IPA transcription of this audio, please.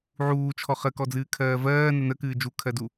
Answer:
ʕ uː t͡ʃʰ ɔ χ ə k ɔ d͡z ɨː kʰ ɜː v ɜː n ə n ə k ɨː d͡ʒ u kʰ ɜ d u

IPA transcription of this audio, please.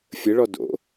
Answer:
fʲ ə ɭ ɔ d o̰

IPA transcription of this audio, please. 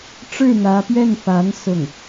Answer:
ʈ͡ʂ ɻ̩˥˩ n̪ ä˧˥ p ɥ ɛ˥˩ n f a˧˥ n s ʊ˥˩ ŋ

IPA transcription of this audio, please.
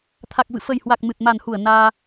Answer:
t̪ʰ a˨˩ k̚ v ɨ̰˧˨ f ə˨˩ j h w a˨˩ k̚ m ɨ˨˩ t̚ m a˨˩ n h u˧˩ ə̯ n aː˧

